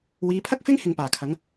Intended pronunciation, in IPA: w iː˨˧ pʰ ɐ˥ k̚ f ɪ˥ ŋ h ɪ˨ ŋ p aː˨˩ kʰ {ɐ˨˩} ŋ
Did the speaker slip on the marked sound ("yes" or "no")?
yes